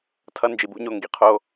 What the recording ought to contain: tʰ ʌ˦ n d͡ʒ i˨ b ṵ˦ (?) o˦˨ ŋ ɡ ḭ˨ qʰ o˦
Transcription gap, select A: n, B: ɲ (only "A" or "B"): B